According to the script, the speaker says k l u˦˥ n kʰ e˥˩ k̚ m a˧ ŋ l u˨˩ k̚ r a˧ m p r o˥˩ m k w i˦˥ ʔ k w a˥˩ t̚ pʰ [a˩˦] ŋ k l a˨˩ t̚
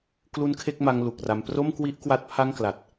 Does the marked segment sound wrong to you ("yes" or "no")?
yes